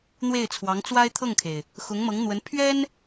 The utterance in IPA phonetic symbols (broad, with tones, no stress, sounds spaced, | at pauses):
n̪ w e˥˩ ɪ̯ t͡sʰ w ɑ˧˥ ŋ t͡s w a˥ ɪ̯ t̪ʰ ɤ˥˩ ŋ kʰ e˩ ɪ̯ | x ʊ˧˥ ŋ m ɤ˧˥ ŋ n̪ w ə˧˥ n pʰ ɥ ɛ˥ n